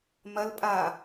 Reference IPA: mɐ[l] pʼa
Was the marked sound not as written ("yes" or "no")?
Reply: no